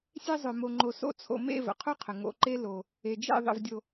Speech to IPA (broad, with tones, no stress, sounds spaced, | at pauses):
sʲ e˧ zˤ œ˨ m o˧ ŋ͡ǃ o˧ s o̰˦ t͡sʰ o̰˧ m ḛ˦˨ v ə̰˨ qʰ o˦ qʰ ə˨ ŋ o̰˧ ǃ e˦ l o˧ | e˨ d͡ʒ ḛ˦˨ ðˤ ə̰˧ v dʲ o˧